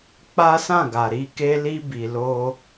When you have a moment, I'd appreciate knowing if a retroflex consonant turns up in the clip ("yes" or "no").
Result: no